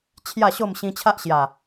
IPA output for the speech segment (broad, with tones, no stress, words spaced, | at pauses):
t͡ɕʰja˥˧ɕo˥˧m ɕĩ˧t͡ɕʰa˦ʔɕja˨˩